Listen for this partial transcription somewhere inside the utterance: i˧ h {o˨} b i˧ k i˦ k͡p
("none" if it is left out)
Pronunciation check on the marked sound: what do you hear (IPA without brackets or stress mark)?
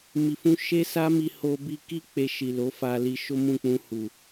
o˧